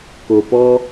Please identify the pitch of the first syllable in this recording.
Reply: low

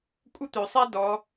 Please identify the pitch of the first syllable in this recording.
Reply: high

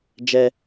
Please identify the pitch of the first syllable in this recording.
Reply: high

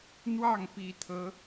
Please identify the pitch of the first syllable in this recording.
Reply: falling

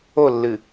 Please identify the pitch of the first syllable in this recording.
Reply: falling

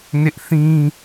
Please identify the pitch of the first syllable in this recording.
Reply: high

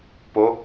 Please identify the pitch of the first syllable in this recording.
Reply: rising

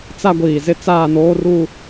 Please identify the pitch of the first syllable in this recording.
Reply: high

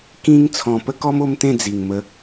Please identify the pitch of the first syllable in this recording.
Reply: high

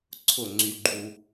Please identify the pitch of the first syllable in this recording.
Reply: falling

